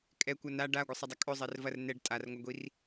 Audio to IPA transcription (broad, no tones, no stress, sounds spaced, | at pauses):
kʼ ɛ kʷ ɐ n a ɖ a ɡʷ ɘ sˤ ɐ dˤ ɐ kʼ ɵ zˤ ɛ r v ɐ r n ɛ ɖ tʼ a r ŋʷ a ɡʷ i r